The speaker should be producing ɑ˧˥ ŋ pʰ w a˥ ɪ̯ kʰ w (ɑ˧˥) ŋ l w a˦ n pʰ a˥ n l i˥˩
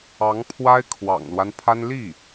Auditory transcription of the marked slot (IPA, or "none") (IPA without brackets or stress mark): ɑ̰˨˩